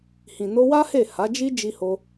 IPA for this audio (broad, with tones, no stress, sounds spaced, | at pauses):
h ĩ˨ n o˧ w a˦ h e˦˨ h a˨˦ d͡ʒ i˦ d͡ʒ i˧ h o˧